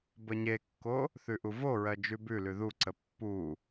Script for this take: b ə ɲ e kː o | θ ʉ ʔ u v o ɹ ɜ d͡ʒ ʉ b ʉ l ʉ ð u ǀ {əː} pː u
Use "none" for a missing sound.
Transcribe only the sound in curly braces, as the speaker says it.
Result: ə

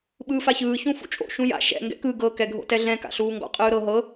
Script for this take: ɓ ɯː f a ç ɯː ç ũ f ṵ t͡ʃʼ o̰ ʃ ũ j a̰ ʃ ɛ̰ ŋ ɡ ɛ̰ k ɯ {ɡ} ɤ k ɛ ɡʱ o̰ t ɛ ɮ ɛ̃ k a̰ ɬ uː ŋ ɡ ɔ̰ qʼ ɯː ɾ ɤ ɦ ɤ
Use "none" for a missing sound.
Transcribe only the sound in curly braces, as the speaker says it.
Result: ɡ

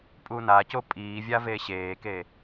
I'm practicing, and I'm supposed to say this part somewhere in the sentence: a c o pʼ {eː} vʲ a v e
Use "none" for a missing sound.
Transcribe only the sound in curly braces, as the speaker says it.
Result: iː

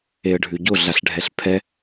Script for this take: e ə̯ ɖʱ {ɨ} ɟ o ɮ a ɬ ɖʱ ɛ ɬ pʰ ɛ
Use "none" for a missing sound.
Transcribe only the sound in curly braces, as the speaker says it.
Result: ʉ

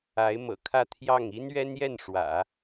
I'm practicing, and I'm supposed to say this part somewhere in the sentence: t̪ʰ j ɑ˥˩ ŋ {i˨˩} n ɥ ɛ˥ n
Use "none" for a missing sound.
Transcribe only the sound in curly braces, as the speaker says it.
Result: i˥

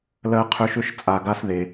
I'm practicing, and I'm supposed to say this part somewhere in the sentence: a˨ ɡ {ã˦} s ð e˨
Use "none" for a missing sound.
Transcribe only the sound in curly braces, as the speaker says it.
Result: a˦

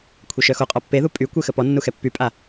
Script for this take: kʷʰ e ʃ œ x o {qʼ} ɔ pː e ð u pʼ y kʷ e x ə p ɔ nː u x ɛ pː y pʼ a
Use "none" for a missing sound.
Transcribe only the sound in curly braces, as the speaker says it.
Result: qʼ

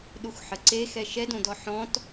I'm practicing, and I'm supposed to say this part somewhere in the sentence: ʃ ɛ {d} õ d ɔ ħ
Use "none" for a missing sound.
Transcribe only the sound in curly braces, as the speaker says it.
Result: d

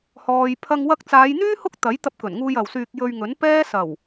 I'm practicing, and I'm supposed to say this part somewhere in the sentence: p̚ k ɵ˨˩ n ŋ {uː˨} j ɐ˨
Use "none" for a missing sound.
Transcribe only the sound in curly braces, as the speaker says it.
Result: uː˧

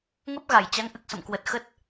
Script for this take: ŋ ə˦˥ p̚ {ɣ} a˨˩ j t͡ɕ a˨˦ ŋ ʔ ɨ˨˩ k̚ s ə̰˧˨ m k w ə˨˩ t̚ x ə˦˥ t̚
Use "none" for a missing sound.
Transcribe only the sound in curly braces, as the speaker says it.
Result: ɣ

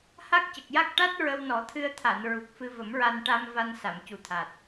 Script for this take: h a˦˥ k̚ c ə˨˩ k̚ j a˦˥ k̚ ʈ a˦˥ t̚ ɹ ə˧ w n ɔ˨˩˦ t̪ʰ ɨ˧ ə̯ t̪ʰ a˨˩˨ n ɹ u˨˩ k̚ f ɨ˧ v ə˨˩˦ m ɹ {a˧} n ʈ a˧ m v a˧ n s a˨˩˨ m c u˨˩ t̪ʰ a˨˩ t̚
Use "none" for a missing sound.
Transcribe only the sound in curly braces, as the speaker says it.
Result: a˧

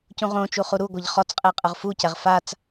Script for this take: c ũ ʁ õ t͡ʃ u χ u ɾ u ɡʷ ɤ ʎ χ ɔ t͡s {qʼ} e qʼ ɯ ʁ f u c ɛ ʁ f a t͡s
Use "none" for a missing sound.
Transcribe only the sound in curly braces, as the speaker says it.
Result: qʼ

